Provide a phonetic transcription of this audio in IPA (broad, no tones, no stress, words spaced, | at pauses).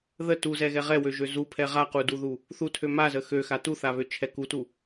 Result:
ðə tuzɛɣɛ ʁɛwøʒø zupʰɛ ʁaquduðu | θutʰø mazə xøxa tuθaβøt͡ʃʰɛ kutu